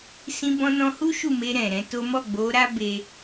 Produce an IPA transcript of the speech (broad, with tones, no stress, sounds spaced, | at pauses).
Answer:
s ĩ˧ b ɔ̃˧ n ɔ̃˧ h u˦ ʃ u˦˨ m e˧ ɾ ɛ̃˨ ɾ ɛ̃˨˦ t o˦ m ɔ˦˨ ɡ͡b o˨˦ ɾ a˦ b e˦